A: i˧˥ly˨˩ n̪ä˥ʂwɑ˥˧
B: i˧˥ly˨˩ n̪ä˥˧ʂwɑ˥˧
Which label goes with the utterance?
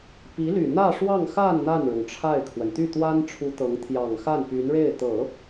B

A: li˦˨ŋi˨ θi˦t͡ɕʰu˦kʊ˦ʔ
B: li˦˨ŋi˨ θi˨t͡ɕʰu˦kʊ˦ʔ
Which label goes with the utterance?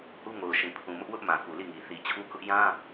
B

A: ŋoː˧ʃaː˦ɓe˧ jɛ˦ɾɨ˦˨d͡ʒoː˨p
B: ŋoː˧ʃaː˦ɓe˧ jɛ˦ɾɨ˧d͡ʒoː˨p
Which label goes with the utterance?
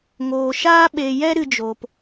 B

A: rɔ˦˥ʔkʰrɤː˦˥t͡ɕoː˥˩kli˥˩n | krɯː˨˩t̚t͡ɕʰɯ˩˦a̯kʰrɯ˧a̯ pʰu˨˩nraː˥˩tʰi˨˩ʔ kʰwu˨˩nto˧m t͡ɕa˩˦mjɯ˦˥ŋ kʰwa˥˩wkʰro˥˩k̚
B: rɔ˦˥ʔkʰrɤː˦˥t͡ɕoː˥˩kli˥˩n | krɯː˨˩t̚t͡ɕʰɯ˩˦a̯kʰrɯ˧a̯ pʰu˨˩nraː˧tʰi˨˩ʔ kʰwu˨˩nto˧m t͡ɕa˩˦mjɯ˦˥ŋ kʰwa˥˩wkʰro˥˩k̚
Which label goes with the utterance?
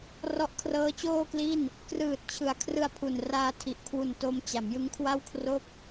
B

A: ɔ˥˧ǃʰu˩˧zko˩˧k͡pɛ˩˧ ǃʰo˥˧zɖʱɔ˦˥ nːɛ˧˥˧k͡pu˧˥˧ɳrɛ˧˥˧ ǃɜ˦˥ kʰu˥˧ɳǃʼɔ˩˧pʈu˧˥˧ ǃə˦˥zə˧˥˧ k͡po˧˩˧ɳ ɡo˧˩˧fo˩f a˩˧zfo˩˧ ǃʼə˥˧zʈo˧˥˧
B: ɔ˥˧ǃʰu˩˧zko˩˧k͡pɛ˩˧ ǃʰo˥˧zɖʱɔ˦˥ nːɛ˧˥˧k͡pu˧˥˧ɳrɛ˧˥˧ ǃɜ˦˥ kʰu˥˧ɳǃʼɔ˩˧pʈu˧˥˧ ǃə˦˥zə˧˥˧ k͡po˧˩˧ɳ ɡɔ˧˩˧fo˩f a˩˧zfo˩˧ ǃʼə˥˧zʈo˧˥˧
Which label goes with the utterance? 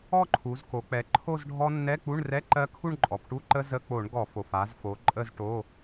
B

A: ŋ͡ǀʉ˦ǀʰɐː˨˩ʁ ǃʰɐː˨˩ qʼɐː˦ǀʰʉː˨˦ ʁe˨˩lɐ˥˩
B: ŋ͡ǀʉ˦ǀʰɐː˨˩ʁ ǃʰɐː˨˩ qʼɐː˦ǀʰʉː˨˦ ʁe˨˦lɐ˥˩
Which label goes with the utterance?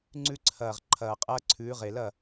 A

